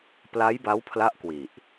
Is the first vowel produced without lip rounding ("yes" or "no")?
yes